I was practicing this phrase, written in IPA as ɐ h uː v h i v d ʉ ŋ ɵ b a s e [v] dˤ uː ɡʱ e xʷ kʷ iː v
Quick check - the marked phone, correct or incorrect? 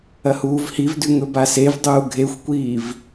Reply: correct